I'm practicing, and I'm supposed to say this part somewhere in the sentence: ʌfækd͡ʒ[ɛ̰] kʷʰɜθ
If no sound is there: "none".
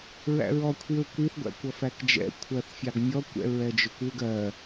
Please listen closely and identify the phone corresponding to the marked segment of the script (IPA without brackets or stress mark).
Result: ɛ̰